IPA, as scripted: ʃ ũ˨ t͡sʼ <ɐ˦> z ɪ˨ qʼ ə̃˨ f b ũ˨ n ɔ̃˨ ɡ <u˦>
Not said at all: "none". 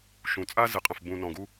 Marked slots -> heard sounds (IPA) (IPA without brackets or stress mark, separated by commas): a˦, u˦